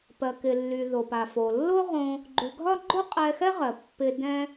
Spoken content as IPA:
p ɜ˩ k ɪ˩ lː y˩ ð o˩ p a˩ f o˩ lː o˥ ʁ õ˧ | ɡ͡ǃ y˩ ɡʱ ɒ˥ ɡ͡ǃ o˥ qʼ ɛ˧ x ɛ˥ ʁ ɜ˩ pː ɪ˧ d ɛ̃˥

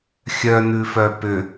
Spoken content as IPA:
xʲ œ n̪ ʉ f œ p ʏ

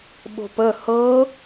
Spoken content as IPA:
ɓ o̤ p ə h ɤ

